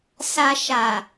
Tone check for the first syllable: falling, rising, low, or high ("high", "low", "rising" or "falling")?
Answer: low